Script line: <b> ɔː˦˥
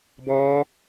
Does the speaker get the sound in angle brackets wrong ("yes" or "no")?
no